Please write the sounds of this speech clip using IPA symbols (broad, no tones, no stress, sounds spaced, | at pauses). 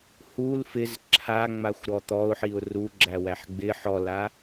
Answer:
h u l f ɪ z ǁʰ a ŋ͡m a xʷ ɾ ɔ t̪ ɔ ʊ̯ ħ i ʊ̯ r u ɡ͡ǁ æ w æ ħ ɡ͡b ɪ ħ ɔ l a